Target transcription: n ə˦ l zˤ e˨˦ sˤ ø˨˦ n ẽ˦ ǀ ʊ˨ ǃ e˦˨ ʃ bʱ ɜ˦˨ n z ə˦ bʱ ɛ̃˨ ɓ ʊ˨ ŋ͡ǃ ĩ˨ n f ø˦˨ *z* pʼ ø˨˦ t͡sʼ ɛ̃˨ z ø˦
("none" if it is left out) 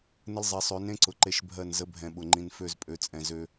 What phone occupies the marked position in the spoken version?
z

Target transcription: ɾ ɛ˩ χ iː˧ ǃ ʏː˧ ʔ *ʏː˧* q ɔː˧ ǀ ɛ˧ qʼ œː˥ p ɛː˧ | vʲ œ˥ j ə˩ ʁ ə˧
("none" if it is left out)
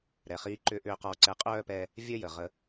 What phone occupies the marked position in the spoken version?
ʏː˧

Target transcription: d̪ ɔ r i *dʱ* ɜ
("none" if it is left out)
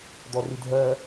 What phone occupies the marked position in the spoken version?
dʱ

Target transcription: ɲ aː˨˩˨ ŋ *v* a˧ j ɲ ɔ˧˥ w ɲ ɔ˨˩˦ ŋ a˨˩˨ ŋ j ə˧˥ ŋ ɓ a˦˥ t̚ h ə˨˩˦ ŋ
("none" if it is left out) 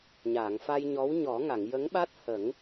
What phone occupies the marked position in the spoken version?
f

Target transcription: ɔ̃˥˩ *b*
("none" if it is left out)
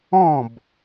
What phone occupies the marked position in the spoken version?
b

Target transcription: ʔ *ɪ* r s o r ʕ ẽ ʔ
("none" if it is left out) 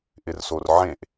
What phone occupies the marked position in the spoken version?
ɪ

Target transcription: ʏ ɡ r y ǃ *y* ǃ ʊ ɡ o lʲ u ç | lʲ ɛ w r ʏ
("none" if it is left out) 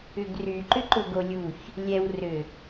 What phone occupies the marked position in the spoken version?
ʏ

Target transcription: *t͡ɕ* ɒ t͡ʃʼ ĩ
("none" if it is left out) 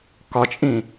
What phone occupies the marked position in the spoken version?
k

